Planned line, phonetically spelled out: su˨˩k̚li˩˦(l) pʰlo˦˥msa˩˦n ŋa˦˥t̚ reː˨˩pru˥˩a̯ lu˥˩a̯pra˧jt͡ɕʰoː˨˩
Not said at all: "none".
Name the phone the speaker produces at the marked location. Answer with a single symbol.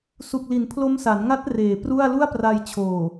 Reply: n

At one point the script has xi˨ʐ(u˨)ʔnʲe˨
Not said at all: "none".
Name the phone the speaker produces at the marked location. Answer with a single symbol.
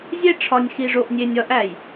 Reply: o˨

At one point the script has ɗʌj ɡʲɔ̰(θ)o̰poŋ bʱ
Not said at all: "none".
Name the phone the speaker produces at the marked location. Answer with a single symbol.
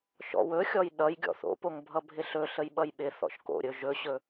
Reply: θ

